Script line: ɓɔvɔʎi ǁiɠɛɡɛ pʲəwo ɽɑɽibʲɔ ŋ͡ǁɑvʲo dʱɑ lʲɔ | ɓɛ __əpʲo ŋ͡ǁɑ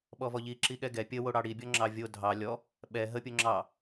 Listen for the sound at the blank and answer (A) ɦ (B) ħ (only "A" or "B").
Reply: A